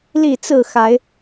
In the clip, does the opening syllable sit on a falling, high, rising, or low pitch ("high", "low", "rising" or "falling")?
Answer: falling